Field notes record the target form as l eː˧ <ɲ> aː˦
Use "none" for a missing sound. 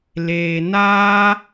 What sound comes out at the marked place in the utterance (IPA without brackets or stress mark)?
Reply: n